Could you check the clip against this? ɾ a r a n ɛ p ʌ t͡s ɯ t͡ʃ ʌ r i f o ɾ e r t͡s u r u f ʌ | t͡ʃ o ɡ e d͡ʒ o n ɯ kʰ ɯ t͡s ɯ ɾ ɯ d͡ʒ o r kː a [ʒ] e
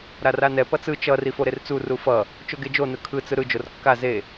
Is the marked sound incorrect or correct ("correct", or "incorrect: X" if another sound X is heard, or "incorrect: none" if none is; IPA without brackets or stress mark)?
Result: incorrect: z